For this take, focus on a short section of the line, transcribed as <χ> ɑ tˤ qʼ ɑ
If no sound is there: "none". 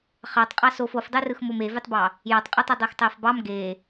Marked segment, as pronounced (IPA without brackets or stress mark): χ